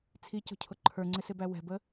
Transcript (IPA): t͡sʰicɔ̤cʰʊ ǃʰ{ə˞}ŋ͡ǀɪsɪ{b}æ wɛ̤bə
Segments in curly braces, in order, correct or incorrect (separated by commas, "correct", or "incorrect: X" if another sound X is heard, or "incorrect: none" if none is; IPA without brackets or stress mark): correct, correct